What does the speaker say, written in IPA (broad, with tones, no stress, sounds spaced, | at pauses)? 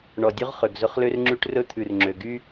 ɳ ɔ˨ dʲ ʉ˦ ʁ χ ø˨ ɡ z ɵ˦ χ l ø˦ r ŋ͡ǁ ʉ˦ ʈ r ɵ˦ t̪ʰ ʉ˨ r ŋ͡ǁ ø˨ ɡ y˦